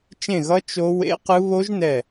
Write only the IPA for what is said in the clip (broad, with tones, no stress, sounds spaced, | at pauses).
t͡ʃ ẽ˦˨ ɣ ʌ˦˥ t͡ʃ o˦˥ w ḛ˦˥ q ɯ˦˥ β o˦˥ ʒ n ɛ˦˨